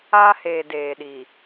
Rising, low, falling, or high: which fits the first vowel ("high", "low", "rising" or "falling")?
high